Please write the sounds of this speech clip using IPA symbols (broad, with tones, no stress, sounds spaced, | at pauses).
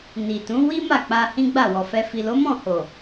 n i˨ t ũ˨˦ w i˦ m a˦˨ k͡p a˧ h ĩ˦ ɡ͡b a˦˨ w ɔ˨ f ɛ˧ f i˨ l o˨˦ m ɔ̃˦˨ h o˨